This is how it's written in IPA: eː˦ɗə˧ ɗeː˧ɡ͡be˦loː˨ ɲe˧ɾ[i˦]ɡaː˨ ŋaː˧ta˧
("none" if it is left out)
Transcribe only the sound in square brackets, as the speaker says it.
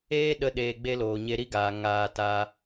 i˦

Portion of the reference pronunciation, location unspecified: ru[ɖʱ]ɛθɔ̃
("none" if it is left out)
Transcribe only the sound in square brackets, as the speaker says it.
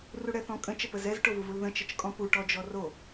ɽ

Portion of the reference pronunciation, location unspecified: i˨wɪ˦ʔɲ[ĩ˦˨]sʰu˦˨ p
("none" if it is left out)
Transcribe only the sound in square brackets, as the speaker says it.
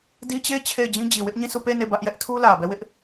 ĩ˦˨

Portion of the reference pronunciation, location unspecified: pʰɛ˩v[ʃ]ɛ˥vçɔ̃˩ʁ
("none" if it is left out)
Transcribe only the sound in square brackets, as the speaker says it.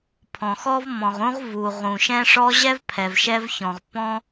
ʃ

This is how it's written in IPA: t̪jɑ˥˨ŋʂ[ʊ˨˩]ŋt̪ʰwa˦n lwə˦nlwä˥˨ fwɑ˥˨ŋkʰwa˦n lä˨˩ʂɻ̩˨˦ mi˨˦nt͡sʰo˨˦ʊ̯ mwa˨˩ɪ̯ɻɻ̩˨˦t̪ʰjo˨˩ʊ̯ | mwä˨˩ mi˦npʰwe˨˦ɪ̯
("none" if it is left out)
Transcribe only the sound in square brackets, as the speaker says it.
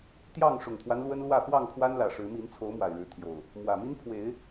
ʊ˨˩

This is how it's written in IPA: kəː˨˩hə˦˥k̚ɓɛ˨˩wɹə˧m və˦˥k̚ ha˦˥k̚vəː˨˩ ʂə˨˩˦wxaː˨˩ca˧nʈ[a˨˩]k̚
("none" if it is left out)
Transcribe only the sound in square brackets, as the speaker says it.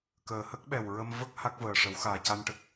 ə˨˩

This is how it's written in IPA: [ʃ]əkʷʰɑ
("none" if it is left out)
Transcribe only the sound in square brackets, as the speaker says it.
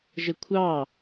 ʒ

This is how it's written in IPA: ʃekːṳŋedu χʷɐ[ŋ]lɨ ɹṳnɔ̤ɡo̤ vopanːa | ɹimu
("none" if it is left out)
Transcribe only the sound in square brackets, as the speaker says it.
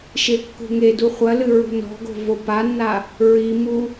none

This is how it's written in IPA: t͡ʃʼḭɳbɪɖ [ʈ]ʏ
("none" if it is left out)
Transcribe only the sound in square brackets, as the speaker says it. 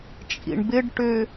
ʈ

